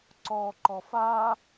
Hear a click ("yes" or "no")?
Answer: yes